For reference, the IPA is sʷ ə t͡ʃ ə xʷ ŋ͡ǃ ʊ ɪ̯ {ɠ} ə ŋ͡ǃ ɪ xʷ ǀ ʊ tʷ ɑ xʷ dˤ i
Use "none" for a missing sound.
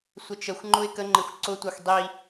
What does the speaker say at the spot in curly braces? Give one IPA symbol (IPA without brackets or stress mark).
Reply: k